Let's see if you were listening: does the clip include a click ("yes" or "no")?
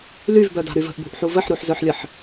no